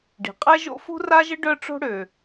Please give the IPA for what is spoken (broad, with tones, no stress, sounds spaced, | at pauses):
ɖ i̤˩ qʼ ɛ˥ ʒ o̰˥ f ṳ˥ r a˥ ʒ ə˥ ɖ œ˥ ʈ͡ʂ o̤˥ ɽ ø˩